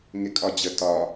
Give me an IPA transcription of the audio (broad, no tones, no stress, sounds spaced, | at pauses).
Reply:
ŋ ɪ kʼ ɒ d͡ʑ ə t ɒ